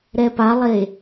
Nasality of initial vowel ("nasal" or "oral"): oral